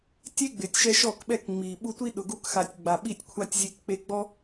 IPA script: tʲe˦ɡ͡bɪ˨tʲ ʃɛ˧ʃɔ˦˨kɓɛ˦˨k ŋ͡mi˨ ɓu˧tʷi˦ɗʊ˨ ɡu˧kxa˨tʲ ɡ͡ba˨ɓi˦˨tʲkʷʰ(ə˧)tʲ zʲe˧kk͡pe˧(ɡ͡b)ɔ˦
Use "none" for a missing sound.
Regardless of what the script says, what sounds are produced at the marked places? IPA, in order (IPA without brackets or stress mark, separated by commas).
a˧, ɡ͡b